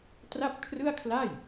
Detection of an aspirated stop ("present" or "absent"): present